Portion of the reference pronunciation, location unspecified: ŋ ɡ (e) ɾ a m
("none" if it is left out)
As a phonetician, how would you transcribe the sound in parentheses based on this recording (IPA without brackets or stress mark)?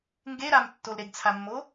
e